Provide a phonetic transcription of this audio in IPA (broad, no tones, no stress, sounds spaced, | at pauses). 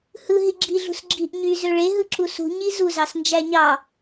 h ɯ ɦ i ɡ͡ǁ i ɮ ṳ s ɡ͡ǁ i ʔ ɲ y z ø ɭ e ɦ ɯ ǁ u s ṳ ɲ i z u z ɑ s n d͡ʒ æ ɲ ɑ